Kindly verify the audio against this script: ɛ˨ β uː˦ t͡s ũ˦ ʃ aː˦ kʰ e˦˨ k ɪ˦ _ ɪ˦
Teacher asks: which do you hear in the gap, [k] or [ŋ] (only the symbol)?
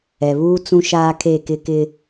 k